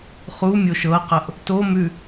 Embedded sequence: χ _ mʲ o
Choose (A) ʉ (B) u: B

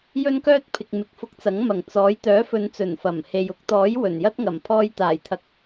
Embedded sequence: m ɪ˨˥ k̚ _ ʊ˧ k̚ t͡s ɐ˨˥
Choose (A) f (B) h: A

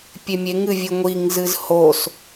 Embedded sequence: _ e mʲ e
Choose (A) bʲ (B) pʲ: B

